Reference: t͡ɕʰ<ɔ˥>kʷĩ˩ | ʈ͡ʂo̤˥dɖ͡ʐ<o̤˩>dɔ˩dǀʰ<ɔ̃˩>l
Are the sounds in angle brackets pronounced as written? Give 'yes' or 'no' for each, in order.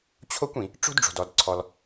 no, yes, no

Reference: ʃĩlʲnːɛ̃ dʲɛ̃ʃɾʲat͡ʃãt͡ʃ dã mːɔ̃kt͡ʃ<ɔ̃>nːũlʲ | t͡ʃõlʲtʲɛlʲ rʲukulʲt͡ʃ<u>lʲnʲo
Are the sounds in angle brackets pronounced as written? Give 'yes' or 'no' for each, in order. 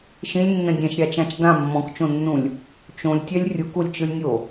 no, no

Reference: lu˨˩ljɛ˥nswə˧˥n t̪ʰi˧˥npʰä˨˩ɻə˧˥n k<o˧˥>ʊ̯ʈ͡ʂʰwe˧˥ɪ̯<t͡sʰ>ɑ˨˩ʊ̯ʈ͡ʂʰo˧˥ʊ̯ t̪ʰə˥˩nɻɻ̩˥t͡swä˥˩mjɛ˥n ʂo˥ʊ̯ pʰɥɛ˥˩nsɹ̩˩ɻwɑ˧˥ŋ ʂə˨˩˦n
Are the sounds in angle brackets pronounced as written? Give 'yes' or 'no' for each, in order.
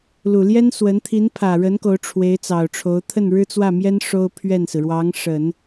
yes, no

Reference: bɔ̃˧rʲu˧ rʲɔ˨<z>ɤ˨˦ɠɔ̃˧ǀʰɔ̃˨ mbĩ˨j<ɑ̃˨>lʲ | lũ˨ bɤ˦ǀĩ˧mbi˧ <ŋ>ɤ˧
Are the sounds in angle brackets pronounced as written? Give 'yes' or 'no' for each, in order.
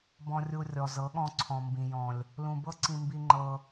yes, no, no

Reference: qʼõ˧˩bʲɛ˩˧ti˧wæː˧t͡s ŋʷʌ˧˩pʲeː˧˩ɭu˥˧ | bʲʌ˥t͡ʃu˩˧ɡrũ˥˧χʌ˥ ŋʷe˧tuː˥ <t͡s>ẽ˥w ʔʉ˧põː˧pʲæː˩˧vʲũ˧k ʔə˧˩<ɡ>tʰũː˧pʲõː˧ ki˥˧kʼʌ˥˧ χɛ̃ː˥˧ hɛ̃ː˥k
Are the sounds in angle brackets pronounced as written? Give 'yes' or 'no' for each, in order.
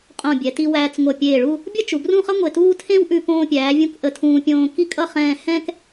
no, no

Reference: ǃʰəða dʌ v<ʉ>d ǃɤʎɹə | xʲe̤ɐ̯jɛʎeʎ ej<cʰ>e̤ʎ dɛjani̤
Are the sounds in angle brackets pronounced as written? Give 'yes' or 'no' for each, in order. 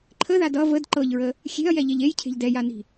no, yes

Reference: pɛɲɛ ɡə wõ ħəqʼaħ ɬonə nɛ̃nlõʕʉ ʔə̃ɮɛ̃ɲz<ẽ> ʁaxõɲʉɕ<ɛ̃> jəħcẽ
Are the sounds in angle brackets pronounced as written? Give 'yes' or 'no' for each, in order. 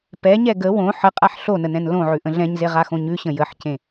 no, no

